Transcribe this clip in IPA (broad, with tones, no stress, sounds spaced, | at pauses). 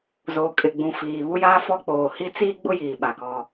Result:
z oː˨ kʼ ɪ˨ ɡ͡b ũ˨ f iː˨ β u˦ j aː˦ f ɔ˦ k͡p oː˨ h i˦ t͡s iː˦ ɡ͡b ʊ˦ j iː˨ ɓ a˨ k ɔ˦